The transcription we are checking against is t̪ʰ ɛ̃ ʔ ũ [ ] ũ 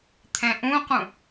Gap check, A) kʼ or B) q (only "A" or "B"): B